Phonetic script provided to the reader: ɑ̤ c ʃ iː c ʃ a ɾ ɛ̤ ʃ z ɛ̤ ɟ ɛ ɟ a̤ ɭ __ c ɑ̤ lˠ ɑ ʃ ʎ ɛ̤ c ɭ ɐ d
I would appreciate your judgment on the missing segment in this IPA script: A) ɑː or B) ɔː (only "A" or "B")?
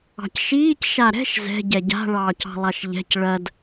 A